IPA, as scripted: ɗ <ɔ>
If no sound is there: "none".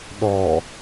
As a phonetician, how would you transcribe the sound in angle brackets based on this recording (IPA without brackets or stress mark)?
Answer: ɔ